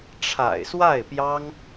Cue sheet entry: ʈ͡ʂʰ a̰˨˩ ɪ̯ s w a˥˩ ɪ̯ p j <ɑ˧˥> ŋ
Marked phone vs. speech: incorrect: ɑ˥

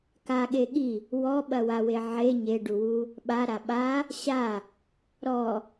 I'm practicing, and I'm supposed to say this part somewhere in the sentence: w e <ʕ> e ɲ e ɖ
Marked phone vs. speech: correct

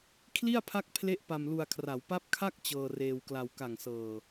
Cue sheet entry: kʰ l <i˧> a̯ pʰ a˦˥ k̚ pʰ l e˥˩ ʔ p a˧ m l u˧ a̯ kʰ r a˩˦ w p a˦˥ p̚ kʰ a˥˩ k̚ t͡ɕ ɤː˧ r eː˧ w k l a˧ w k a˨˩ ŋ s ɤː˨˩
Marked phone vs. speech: incorrect: i˥˩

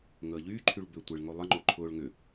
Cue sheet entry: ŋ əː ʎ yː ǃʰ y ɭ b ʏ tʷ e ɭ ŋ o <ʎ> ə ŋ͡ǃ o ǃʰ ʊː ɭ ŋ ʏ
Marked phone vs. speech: incorrect: lˠ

